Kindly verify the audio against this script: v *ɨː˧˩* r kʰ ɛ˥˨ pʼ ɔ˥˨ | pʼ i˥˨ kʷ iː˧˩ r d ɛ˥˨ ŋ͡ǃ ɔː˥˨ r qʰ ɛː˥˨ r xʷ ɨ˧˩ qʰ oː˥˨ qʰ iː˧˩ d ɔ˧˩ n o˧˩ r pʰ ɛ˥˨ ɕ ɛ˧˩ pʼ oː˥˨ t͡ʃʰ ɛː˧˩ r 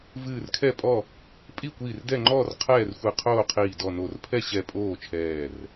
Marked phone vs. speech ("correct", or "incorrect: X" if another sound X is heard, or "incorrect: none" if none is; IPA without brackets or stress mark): correct